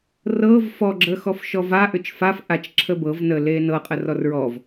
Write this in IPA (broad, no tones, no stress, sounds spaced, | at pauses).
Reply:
r ɤː v f ɔ ɡ͡ǁ əː x ɔ f ʃ ɔ v a ʔ ʏ t͡ʃ f a f ʔ a t͡ʃ ǁʰ ə b ɤ v n əː l eː n ɤ qʼ ə r ɔ r ɹ ɔ v